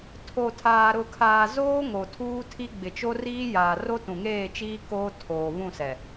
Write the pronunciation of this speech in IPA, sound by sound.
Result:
tʰ o˨ tʰ aː˨ ɾ ʊ˨ kʰ aː˨ z oː˦ ŋ o˨ tʰ uː˦ tʰ i˦ ɡ͡b ɪ˨ t͡ʃ o˦ r iː˦ j aː˨ r o˦ t ũ˨ ŋ eː˦˨ t͡ʃ iː˦ k oː˦ tʰ oː˨ β ũ˦˨ s ɛ˨

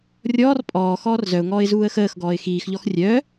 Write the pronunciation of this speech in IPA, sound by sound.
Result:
rʲ ɔː r pʼ ɔː x ɔː r z œ ʊ̯ ŋ ɔː ɪ̯ z uː ə̯ x əː x ɡ ɔː ɪ̯ x iː x ʎ ɔ x rʲ œː

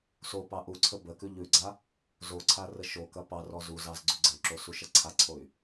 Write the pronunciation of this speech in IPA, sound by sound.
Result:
s o p ɑ ʔ u ǀʰ ə b ə k ʉ ʎ ʉ ɡ͡ǀ a | z o ǀʰ a r ə ʃ o k ɐ p ɑ r ɔ z u z ɑ z ɡ͡ǀ ʉ ɡ͡ǀ ə y̯ ǁ o s u ʃ ɐ ǀʰ a ǀʰ o y̯

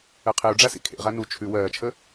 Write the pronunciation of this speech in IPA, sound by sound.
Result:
ɜ qʰ e u̯ ɖ͡ʐ a s ḭ kʰ ḛ ʁ a n u t͡ʃʰ ʉ w ɜː t͡ʃʰ ə

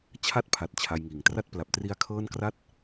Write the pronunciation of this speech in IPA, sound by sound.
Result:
t͡ɕʰ a˥˩ t̚ pʰ a˨˩ t̚ t͡ɕʰ a˧ j ŋ iː˨˩ ŋ t r a˥˩ t̚ p l a˨˩ p̚ t r i˦˥ a̯ kʰ ɤː˥˩ n k r a˥˩ t̚

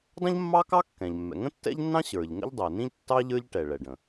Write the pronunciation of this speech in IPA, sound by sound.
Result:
dˤ ə̃˥ ʎ mː ɑ˥ k ɑ˥ kː ɛ̃˩ ʎ mː ɛ̰˩ ŋ ə̃˥ tː ɛ̰˥ ʎ nː ɑ̃˥ ɕ ə˞˩ ʎ ŋ ə̰˥ ʎ dˤ ɛ˩ n ĩ˥ ʎ tː ɑ˥ ʎ ə˞˥ ʎ ʈ ɛ˩ ɭ ɛ˩ ɖ ə̃˩

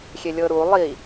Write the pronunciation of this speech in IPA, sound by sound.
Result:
xʲ e lʲ ɤ ɾ u lˠ i

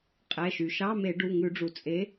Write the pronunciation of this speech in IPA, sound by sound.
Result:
qʼ ɛ˩˧˩ ʃ y˩ ʃ ɑ˧˥˧ m e˧˩˧ ɖ u˩˧˩ ŋ ʉ˧˩˧ ɖ͡ʐ u˩ t͡sʼ e˨˥

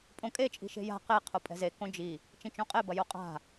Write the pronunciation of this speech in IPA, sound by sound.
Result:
pʼ õ kʼ e t͡ʃʼ i̤ ʃ e̤ j a̤ q e qʰ o pʼ ɛ̤ z e k õ d͡ʒ i | t͡ʃ ĩ t͡ʃ õ qʼ e b ɐ j o qʼ a̤

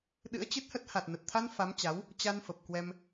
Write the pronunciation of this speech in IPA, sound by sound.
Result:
ɗ ɨ̰˧˥ ə̯ t͡ɕ ɨ˦˥ t̚ h ə˦˥ t̚ h a˨˩ t̚ n ə˨˩ t̚ t̪ʰ a˧ n f a˨˦ m t͡ɕ a˨˦ w | t͡ɕ a˧ n f ə˨˩ p̚ k w ɛ˧ m

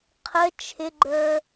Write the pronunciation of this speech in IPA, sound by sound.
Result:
qʰ ə t͡ʃʰ ɪ ɡ͡ǃ ə˞

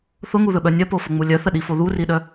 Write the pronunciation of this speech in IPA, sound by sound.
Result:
θ ʊ ŋ u ð ɵ ɓ œ nʲ œ p o f ʊ ŋ͡m u lʲ œ θ ə ɗ i f o ð u r i ɗ œ

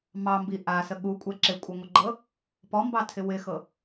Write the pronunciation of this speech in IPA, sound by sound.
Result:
m ɑ m b i ʔ a s ə ɠ u kʷʼ ɛ ǁ ɪ kʷʼ ɜ ŋʷ ə ɡ͡ǃ ɤ | p ɔ m b ɑ tʰ ɪ w ɪ x ɤ

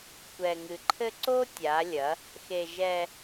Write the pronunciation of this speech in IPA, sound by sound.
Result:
kʷ ɛ˨ ŋ ɨ˨ ǃʰ ɘ˦ ǀ o˦ tʲ a˨˦ lʲ ɐ˨˦ | x e˨ ʒ ɛ˦

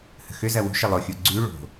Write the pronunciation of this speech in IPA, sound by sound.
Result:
h ə̤ x ʏ z ɐ w ṳ ʃ ɪ lˠ o xʲ u ɡ͡ǀ y ɭ o̤

